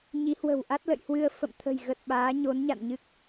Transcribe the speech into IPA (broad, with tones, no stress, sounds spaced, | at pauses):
ɲ i˨˦ h w ə̤˨˩ w ʔ a˦˥ t̚ l ə̰˧˨ j h w ɨ˧ ə̯ f ə̰˧˨ m t̪ʰ ə̤˨˩ j ɣ ə˨˩ t̚ ɓ aː˨˦ ɲ o˨˦ n ɲ a̰˧˨ n ɲ ɨ˦˥ k̚